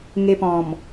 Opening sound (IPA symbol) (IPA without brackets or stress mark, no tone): ŋ